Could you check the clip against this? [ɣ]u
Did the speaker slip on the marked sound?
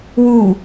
yes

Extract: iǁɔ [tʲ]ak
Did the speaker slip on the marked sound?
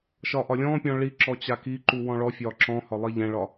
yes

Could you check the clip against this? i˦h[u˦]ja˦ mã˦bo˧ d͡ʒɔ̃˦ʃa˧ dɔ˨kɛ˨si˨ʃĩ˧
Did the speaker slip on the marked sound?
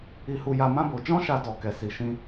no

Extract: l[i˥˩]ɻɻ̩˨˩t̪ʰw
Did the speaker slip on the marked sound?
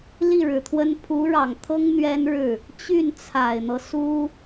no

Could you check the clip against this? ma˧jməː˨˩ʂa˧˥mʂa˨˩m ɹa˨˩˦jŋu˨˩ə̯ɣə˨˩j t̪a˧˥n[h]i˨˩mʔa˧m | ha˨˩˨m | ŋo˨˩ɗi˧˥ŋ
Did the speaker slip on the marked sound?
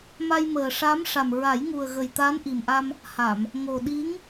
yes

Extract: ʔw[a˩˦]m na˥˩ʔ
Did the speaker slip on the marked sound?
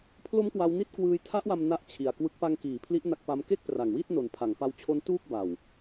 yes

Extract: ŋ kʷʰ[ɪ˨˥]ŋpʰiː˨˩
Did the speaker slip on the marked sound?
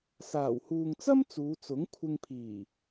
yes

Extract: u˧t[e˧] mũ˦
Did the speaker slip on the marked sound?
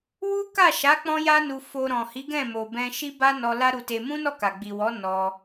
no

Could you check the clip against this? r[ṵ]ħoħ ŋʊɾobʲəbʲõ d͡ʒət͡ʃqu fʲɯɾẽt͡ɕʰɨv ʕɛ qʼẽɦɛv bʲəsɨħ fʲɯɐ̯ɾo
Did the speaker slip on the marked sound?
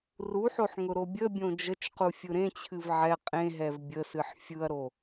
yes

